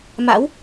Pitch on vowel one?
rising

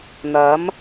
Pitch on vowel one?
rising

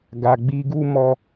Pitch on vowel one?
low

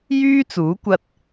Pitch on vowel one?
high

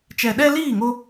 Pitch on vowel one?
low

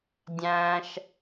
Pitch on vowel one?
low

